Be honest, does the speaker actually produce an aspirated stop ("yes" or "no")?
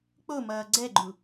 no